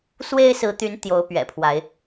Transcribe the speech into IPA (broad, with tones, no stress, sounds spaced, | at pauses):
s w e˦ ɪ̯ s ɹ̩˨˦ t̪ y˨˦ n t̪ j o˨˦ ʊ̯ p ɥ ɛ̰˨˩ pʰ w a˨˦ ɪ̯